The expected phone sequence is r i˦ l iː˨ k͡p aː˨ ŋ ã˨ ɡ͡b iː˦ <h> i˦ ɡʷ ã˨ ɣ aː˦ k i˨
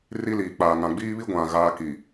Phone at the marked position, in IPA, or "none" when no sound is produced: β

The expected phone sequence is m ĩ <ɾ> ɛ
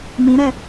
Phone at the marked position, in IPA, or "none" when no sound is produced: ɾ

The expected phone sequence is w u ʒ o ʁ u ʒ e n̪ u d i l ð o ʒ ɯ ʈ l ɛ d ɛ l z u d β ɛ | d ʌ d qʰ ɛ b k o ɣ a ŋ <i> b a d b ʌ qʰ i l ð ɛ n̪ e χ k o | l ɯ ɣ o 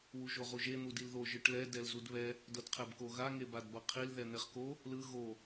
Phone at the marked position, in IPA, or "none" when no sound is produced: e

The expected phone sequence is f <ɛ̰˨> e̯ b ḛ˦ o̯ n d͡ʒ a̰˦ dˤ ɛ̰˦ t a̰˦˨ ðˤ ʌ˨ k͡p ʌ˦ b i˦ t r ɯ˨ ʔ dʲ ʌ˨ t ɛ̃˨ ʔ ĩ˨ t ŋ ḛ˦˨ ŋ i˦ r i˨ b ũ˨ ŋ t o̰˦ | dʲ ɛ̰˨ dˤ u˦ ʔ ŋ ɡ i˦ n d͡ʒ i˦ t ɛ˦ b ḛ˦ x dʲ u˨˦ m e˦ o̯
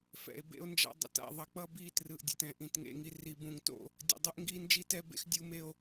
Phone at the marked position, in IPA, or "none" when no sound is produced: ɛ̰˨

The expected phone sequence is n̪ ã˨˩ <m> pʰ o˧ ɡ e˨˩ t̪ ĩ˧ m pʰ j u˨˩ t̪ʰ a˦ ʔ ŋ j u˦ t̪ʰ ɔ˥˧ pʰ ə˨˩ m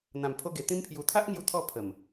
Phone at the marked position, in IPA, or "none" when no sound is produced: m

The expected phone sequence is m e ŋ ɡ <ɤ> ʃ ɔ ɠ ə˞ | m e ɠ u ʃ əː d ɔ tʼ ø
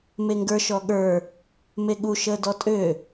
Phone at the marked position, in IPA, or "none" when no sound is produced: ə˞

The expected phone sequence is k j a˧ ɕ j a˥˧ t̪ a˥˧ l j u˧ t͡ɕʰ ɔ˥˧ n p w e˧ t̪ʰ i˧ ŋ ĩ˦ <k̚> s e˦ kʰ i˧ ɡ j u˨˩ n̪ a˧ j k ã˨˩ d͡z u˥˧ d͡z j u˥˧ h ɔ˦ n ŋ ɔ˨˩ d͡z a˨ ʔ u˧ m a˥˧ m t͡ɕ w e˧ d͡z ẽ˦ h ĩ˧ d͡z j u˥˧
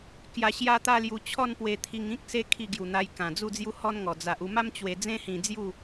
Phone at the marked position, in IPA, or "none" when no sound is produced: k̚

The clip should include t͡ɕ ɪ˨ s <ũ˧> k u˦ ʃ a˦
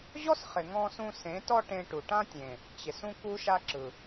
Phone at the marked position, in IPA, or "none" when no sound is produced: ũ˦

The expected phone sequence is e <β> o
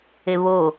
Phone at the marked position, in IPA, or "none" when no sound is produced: β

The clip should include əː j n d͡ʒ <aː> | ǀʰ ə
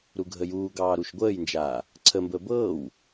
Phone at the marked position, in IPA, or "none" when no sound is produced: aː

